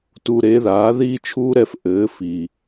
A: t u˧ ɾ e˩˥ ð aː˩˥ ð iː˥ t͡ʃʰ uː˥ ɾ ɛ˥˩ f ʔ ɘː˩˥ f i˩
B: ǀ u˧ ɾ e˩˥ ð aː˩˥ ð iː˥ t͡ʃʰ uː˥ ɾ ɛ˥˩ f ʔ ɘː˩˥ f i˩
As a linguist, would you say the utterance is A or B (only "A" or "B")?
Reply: A